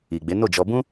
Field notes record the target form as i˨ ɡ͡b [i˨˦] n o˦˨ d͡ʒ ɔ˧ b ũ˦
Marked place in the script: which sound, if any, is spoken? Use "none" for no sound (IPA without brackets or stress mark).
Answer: e˨˦